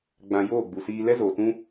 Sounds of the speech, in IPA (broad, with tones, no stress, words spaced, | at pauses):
ɡ͡bã˧ joː˦˨ɡ͡bu˨siː˧ lɛ˦zoː˨tũ˦